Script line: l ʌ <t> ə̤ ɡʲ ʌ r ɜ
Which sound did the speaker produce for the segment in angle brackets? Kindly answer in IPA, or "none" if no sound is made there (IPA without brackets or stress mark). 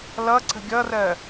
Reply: ǀ